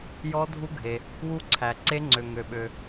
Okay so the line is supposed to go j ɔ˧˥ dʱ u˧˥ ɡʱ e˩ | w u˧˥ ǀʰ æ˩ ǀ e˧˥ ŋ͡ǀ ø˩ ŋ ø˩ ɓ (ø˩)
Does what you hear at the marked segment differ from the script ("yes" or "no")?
no